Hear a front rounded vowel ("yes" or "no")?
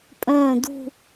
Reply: yes